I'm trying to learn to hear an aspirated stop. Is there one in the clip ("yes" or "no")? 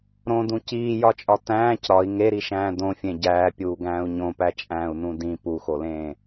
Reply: no